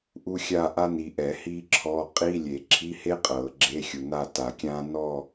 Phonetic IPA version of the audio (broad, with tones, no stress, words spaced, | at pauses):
ʔu˥xʲa˥˧ʔa˥ ni˨ʔɛ˨˩˦ hiː˥ǁʰɔ˧˥˧ qʼi˧˥˧lʲe˨˩˦ ǁʰi˧˥˧he˥ qʼɤː˨˩˦ɡ͡ǁe˧˥˧xʲu˨ na˥˧ta˨˩˦kʲãː˥ nɔ˥˧